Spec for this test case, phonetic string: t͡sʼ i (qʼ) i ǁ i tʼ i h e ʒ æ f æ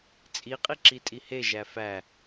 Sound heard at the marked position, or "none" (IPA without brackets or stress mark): qʼ